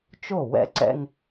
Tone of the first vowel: falling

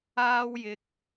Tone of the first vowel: high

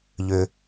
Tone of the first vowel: high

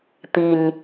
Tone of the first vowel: low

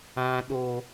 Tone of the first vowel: high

